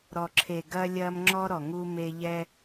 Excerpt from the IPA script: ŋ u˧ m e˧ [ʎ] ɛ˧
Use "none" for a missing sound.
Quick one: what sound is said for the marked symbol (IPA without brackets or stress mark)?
ʎ